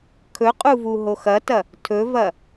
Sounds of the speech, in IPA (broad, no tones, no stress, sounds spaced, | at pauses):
kʰ ɵ qʼ u v u ɦ o x ɐ t ɐ | tʰ ɵ v ɐ